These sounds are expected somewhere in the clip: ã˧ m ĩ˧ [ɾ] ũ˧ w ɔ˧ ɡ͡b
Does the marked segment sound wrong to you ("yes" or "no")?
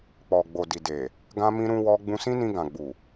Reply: no